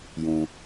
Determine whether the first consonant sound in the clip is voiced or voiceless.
voiced